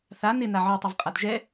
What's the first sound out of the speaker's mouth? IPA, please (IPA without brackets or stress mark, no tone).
θ